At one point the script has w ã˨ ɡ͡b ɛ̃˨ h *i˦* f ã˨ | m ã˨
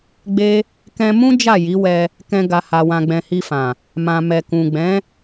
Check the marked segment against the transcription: incorrect: i˧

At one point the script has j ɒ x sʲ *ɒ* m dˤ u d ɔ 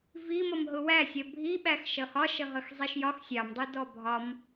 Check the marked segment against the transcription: incorrect: ɑ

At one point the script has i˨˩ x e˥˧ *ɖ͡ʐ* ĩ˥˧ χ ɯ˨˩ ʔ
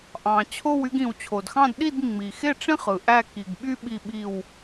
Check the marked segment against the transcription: incorrect: ʈ͡ʂ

